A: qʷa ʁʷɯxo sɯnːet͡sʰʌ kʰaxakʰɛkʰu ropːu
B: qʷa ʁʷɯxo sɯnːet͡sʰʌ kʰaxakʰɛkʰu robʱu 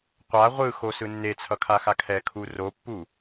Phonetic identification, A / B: A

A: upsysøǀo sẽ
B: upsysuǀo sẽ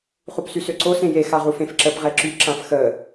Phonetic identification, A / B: A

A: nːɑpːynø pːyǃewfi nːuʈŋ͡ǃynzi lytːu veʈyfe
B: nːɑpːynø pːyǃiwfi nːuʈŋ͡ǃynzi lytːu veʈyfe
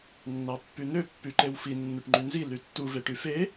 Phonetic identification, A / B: A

